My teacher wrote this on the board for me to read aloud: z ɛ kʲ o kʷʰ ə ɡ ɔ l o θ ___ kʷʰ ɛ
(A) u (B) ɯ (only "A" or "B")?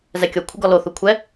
A